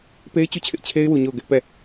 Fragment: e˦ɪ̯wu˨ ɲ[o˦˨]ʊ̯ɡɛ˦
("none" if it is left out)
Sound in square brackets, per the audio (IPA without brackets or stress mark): o˦˨